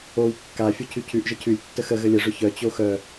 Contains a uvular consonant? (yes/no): no